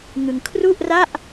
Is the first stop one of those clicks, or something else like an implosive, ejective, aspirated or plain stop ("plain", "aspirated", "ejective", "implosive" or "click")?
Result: aspirated